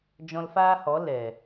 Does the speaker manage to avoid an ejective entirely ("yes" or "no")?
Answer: yes